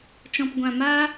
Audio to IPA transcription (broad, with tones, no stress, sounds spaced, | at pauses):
t͡ʃ ɔ̃˨ p ɡʷ ã˨ m aː˦